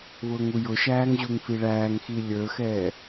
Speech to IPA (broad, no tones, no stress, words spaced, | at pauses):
βʊːŋujʊʃæːŋ ʑuŋfiɭæːŋxi lʲə˞xɛː